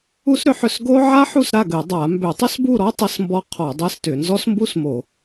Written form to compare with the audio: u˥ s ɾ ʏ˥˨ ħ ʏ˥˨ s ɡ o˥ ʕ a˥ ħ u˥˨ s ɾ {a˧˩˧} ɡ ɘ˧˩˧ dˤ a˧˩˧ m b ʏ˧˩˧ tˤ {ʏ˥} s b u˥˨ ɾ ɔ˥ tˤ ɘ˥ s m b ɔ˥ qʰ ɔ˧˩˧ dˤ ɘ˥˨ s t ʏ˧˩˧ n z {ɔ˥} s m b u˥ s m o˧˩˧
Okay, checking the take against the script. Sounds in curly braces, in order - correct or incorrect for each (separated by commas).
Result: incorrect, correct, correct